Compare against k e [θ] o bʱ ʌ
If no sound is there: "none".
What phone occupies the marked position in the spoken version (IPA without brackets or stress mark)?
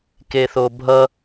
θ